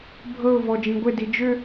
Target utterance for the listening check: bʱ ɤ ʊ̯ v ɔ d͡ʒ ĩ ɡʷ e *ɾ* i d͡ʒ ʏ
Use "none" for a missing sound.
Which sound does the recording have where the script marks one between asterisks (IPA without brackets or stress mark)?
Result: d